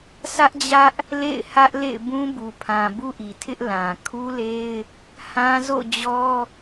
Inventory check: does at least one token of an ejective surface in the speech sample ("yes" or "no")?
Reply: no